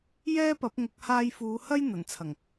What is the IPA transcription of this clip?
j ɛː˥ p ɐ˨˥ p̚ ŋ ʊ˨˥ k̚ h aː˧ j f uː˨˧ h ɐ˥ j n̪ ɐ˨˩ n t͡sʰ ɐ˨˩ ŋ

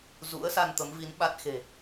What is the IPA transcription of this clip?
z ṵ˧˥ ə̯ s a˧ n t̪ ə˨˦ m v i˨˦ n ɓ a˦˥ t̚ x e̤˨˩

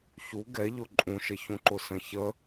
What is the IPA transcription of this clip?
ç u ɡ ɛ ʎ ʊ ǃʼ ũ ʃ ə ç ũ ǃ ʊ s ə̃ ç ə

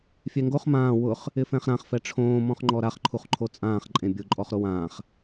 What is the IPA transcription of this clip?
fʲ ɛ ŋ ɡ o χ m ãː w ʊ χ | ɪ f ɛ̃ χ ɾ ã χ f ɛ ʈ͡ʂʰ õː m ɔ̃ χ ŋ͡ǃ ɔ ɾ a χ ǃʰ u χ ǃʰ o t͡sʼ ãː χ ǃʼ ẽ bʲ ʊ ǃʼ ɔ χ ɾ o w ãː χ

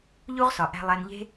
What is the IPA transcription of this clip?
ʎ u˦ ʁ s ɒ˨ ʔ æ̤˧ lˠ æ˧ n ʎ e̤˦

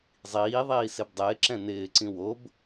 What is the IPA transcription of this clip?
zˤ iː ðˤ iː s e b dˤ ɪː ǁ ɛ̃ n ɪː ǀ ĩ w o b

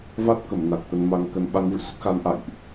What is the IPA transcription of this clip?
v a˦˥ t̚ k ə˧˩ m n a˨˩ k̚ t̪ ə˧ n m a˨˦ ŋ k ə˨˦ n ɓ a˨˦ ŋ v ɨ̰˧˨ s ə˦˥ t̚ x a˨˦ n ʔ a̰˧˨ j ʔ

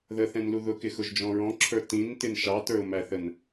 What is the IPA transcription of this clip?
ð ə θ ɛ̃ n l u ð ʊ k ɪ x ʊ ʒ d͡ʒ ɔ̃ ɹ ɔ̃ ǁʰ ə˞ t ĩ n t ɪ n ʃ ɑ t ə˞ ʊ̯ m æ θ ə n

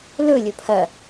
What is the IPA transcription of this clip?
l ɵ lʲ ɵ pʰ ɐ

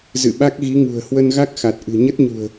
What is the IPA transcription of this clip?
z ɨ̰˧˨ ɓ a˦˥ k̚ ɣ i˨˦ ŋ ṳ˨˩ ə̯ h w ə˧ n ɣ a˦˥ k̚ x a˨˩ t̚ ʔ ɨ̤˨˩ ɲ ə˦˥ t̚ ɲ ṳ˨˩ ə̯

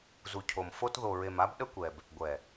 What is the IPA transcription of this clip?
z u˨ cʰ o˨ m f o˦ t ð o˨ ɹ e˨ m a˦ b ɗ ə˦ kʷ ɛ˨ b | ɡʷ ɛ˨

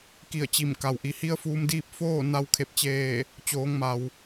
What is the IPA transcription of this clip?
k i˧˩ ə̯ t͡ɕ i˧˩ m k a˩ w ʔ i˩ h i˧˥ ə̯ f uː˧ m d iː˥˨ p̚ f oː˥˨ n a˧ w kʰ e˧˩ p̚ t͡ɕ eː˧˩ | t͡ɕ oː˩˧ ŋ m a˩ w

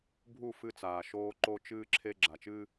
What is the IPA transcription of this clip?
bʱ u˦˨ f ɨ˧ t͡s aː˨ ʃ oː˧ ǃ o˧ t͡ʃ ɨː˧ ǁʰ e˧ ɡ͡ǁ a˨ t͡ʃ ɨː˧

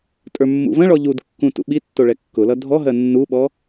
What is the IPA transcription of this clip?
tʼ ə˞ mː ṵ v ə̃ ɭ ɔ ʎ u d kː ũ t ṵ ɓ i tː o ɭ ɛ kː ʊ l ʌ dʱ ɔ ɦ ɜ nː u ɓ ɔ

